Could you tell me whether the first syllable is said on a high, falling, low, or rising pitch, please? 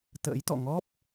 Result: rising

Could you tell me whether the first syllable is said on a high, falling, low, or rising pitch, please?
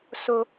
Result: high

